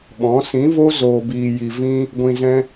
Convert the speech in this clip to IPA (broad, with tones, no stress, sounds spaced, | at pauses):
ɓ ɔ̃˨˦ s ĩ˨˦ v o˦ z oː˧ b iː˧ j i˧ v ĩ˦ | ɡʷ ĩ˧ z ɛ̃˦